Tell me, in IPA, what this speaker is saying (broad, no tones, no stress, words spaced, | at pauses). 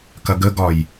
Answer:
kɐɡəɡɒj